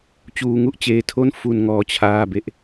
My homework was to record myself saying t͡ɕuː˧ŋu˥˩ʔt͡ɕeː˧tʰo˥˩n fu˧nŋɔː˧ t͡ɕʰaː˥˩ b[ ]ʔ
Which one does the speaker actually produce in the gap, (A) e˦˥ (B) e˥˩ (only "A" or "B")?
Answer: A